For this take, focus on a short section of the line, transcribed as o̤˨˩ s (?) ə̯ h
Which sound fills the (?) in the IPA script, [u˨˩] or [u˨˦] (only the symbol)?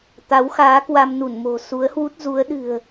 u˨˦